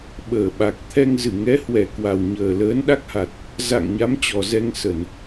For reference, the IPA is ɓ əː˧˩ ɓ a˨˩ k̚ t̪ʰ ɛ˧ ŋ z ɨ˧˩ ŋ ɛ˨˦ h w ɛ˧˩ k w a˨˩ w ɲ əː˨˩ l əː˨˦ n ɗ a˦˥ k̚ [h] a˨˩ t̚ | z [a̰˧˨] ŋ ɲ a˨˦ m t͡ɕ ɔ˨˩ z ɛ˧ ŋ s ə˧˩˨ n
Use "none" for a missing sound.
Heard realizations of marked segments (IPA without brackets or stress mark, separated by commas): h, a̰˧˨